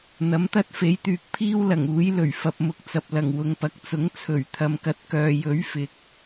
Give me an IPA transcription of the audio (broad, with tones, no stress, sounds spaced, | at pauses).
n̪ ɐ˨˥ m t̪ ɐ˥ t̚ f e˨˥ j t̪ yː˨ k̚ pʰ iː˥ w l ɐ˨˩ ŋ uː˨˧ j l ɵ˨˩ ɥ f ɐ˨ p̚ m ʊ˨ k̚ t͡s ɐ˨ p̚ l ɐ˨˩ ŋ w ʊ˨ ŋ p ɐ˨ k̚ t͡s ʊ˨˥ ŋ t͡sʰ ɵ˨˩ ɥ t̪ʰ ɐ˨ m k ɐ˨ t̚ k œː˨ j ɵ˨˥ ɥ f ɪ˨ k̚